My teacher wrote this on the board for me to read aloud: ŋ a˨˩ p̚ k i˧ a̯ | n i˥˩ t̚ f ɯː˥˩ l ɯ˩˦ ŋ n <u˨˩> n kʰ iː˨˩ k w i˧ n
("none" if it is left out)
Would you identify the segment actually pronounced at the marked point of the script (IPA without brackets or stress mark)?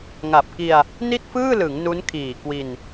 u˦˥